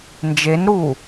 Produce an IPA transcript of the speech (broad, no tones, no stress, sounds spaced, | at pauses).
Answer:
n d͡ʒ e n ɾ u